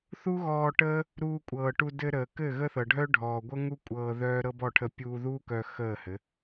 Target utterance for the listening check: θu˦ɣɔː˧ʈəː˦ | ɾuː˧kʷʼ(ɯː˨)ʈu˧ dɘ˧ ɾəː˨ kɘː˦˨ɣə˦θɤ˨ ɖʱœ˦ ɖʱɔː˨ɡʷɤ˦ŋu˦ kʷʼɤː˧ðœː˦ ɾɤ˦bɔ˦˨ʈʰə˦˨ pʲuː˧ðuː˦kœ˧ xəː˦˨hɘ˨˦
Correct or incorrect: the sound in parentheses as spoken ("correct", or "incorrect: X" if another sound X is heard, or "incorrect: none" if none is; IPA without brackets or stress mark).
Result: incorrect: ɤː˨